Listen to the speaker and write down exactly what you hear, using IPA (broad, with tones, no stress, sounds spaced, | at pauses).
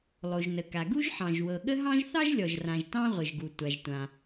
lˠ o˩ ʒ n ə˩ k a˩ ɡ u˥ ʒ ħ ɑ̃˩ ʒ w ɤ˩ ɠ ə˥ ɦ ɑ̃˥ ʒ θ ɑ˥ ʒ lʲ ɔ˩ ʒ r ã˩ ʒ t ɑ̃˥ ʁʷ ə˩ ʒ ɡ u˩ tʷ a˩ ʒ tʷ ã˩